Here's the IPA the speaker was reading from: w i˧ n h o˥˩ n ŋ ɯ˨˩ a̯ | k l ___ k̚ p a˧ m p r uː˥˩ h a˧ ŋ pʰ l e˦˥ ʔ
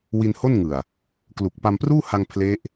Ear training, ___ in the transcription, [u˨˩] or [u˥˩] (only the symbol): u˨˩